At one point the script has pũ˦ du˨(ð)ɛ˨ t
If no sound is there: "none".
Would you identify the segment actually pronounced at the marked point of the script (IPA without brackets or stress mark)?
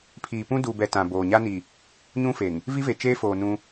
b